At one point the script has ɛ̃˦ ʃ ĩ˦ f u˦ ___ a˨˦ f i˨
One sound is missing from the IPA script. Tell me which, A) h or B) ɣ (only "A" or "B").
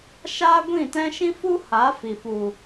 A